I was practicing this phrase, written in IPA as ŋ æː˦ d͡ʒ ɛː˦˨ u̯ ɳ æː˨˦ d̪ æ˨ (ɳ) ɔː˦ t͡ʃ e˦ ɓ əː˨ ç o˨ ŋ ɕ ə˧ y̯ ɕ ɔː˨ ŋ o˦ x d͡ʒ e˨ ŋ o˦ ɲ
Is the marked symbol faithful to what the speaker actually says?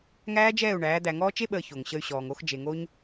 no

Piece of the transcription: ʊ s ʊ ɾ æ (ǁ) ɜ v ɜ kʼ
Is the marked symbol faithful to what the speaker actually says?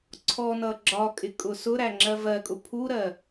no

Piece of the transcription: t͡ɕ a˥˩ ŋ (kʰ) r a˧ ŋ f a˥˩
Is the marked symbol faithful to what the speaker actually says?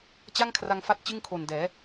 yes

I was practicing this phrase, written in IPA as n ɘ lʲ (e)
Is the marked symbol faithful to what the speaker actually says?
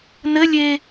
yes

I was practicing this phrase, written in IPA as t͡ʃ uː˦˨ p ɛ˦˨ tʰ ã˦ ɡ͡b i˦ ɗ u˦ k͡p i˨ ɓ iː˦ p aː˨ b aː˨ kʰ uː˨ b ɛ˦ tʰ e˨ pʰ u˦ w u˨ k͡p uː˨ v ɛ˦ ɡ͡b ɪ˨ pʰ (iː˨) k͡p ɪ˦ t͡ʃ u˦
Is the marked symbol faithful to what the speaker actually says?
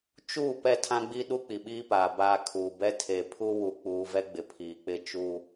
yes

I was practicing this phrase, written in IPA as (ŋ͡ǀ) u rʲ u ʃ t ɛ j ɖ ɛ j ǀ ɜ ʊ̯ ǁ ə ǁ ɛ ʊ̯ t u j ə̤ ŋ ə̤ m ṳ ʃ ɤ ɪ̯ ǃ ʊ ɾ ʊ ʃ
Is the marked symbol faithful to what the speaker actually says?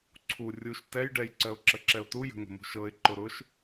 no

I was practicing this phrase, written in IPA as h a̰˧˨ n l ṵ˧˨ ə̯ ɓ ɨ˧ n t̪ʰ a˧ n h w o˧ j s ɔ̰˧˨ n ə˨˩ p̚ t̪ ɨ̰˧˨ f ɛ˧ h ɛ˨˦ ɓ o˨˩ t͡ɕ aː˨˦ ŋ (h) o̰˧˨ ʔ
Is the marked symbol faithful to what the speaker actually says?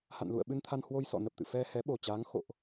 no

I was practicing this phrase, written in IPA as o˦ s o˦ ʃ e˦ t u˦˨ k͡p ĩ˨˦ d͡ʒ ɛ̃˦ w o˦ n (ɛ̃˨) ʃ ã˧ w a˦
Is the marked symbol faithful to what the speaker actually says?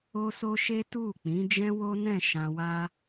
no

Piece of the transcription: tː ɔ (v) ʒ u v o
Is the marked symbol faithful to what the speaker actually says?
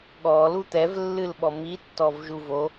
yes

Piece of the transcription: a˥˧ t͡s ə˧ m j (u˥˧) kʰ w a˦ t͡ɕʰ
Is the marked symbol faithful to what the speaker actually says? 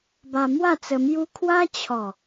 no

